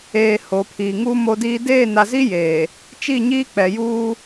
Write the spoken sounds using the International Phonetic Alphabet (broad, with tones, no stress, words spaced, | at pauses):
eː˨ hoː˨pʰiː˨ŋuː˦ mo˦diː˦ deː˦˨na˨zi˦ jeː˨ | t͡ʃi˦˨ɲiː˦ k͡pɛ˨juː˦